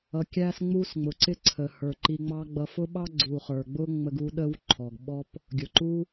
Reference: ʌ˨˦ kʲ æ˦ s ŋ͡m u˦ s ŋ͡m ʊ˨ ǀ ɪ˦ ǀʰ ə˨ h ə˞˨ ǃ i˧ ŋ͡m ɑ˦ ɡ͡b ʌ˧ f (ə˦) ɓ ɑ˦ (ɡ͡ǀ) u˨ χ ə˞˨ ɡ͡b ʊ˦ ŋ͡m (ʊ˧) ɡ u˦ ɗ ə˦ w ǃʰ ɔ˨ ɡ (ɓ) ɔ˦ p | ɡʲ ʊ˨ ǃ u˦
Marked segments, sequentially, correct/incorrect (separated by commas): incorrect, correct, incorrect, correct